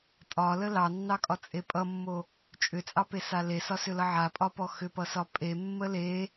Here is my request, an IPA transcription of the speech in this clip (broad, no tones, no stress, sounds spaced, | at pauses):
tʼ ɒ l ə l ɑ nː ɑ kʼ ɒ t͡sʼ e pʼ ʌ mː o | t͡ʃʼ ʏ t͡sʼ ɑ p e s a l e s ɒ s ʏ l ʌ ʕ a pʼ ɒ p ɔ x ʏ p ʌ s ɒ pʼ e mː ə l e